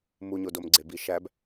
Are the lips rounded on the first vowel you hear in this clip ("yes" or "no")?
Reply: yes